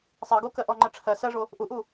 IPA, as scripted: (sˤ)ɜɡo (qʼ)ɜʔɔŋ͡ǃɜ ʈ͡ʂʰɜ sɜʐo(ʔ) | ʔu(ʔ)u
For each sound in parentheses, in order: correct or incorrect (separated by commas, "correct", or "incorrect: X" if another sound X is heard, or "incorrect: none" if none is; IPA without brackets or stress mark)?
correct, incorrect: k, incorrect: none, correct